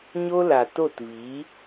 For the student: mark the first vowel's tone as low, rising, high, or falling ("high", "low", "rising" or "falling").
high